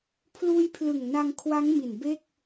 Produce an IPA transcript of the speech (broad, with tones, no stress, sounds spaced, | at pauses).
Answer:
pʰ l uː˧ j pʰ l ɯ˨˩ ŋ n a˧ ŋ kʰ w a˦˥ ŋ m i˨˩ n b e˥˩ k̚